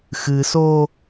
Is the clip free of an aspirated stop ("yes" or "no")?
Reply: yes